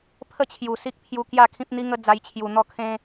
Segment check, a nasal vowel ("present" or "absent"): present